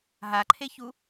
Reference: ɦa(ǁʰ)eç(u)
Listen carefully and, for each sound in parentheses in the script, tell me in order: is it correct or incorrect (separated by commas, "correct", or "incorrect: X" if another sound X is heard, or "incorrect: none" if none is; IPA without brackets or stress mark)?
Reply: incorrect: ǃʰ, correct